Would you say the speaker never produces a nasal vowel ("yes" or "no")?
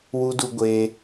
yes